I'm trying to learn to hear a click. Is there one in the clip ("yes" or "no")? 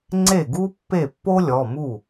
yes